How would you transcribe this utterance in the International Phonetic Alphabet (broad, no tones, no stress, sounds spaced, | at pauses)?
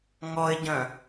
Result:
ŋ ɔ ɪ̯ ɟ œ̃